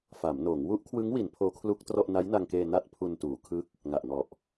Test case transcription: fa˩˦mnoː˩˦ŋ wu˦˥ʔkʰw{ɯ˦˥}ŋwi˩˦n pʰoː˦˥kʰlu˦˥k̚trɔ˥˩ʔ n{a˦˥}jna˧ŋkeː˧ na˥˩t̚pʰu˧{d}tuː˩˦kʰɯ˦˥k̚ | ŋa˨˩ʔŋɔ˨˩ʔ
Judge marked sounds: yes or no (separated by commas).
yes, yes, no